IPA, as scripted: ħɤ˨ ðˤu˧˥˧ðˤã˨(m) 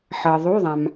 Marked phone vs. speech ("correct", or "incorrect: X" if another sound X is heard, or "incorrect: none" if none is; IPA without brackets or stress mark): correct